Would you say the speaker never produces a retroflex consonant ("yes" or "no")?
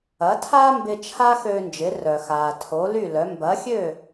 yes